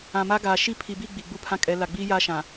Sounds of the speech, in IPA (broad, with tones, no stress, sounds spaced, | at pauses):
ã˨ m a˦ ɡ aː˨ ʃ i˦˨ pʰ i˨ b i˦˨ ɡ͡b i˨ ɡ͡b u˦ pʰ ã˦ kʼ ɛ˨˦ l a˨ ɡ͡b iː˦ j aː˦ ʃ ã˨